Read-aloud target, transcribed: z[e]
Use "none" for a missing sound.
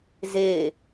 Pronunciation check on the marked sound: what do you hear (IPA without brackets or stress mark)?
e